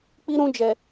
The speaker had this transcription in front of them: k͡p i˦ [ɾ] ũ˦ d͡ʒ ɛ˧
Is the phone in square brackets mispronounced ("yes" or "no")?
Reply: no